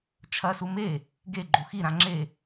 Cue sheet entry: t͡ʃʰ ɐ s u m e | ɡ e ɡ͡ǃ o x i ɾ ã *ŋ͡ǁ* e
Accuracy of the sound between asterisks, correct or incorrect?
correct